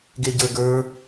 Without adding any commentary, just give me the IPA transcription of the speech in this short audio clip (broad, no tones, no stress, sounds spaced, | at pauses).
ɡ e ɟ ə˞ ɡ ə˞